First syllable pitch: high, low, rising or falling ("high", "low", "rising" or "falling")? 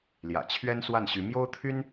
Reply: low